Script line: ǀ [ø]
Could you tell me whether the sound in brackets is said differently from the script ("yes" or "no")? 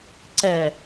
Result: yes